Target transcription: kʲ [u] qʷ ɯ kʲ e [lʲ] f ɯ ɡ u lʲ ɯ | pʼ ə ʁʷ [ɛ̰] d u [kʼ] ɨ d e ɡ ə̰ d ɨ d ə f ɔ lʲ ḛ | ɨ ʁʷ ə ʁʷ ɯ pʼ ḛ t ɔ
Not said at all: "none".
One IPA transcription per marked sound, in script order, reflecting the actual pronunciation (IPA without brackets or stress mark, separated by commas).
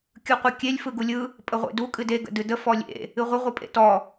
ɯ, lʲ, ḛ, kʼ